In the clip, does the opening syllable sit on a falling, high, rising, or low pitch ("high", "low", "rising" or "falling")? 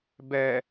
low